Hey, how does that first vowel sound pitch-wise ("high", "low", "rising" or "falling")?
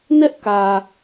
high